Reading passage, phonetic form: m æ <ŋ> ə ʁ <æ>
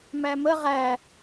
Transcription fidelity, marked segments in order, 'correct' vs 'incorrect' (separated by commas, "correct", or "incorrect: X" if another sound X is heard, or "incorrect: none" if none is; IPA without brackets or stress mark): incorrect: m, correct